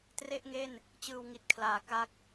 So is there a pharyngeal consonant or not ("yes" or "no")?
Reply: no